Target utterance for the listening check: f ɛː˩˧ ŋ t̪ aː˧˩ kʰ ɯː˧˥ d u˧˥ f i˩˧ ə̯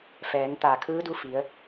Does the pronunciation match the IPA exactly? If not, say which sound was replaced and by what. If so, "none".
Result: none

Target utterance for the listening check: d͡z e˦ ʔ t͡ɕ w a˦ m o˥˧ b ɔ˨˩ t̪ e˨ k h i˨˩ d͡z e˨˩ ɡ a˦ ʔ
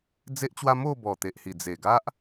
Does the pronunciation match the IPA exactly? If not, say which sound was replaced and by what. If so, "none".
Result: k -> ʔ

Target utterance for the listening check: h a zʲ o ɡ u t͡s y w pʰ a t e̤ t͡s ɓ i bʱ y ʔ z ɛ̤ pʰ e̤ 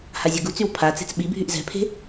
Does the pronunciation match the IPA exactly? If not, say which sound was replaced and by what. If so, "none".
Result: t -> t͡s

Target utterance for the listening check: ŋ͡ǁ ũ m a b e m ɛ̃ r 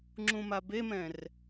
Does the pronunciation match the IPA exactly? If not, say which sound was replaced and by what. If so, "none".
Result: none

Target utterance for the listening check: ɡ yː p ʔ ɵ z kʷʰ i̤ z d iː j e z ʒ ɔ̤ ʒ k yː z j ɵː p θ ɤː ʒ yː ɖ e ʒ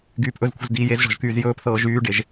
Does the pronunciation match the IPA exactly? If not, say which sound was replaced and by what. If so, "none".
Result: none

